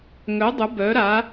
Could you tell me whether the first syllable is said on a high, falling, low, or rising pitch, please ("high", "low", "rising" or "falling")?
rising